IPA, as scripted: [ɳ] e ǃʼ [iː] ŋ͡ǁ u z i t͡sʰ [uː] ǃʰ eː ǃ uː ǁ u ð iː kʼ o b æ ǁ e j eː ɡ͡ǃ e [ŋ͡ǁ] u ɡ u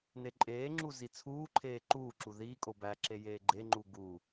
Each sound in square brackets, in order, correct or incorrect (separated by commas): incorrect, incorrect, correct, incorrect